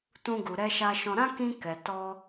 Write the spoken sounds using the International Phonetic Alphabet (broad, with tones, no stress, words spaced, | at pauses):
tũ˧ɡu˨ɾɛ˧ ʃa˧ ʃɔ̃˦ ɾã˦kĩ˧ kɛ˨tɔ˧